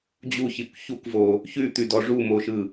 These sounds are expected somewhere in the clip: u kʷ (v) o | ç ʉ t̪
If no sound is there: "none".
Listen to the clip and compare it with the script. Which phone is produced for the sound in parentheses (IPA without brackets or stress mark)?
v